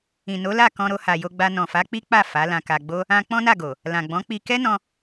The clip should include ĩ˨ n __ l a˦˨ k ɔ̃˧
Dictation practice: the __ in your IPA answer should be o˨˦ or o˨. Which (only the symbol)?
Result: o˨˦